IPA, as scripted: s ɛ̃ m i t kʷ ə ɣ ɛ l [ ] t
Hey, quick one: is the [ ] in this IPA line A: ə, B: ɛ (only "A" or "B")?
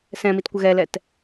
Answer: B